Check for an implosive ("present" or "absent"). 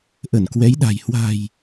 present